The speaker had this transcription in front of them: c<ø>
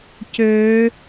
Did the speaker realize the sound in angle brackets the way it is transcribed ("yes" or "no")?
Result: yes